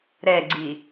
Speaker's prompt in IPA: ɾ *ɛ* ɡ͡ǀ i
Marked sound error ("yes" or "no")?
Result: no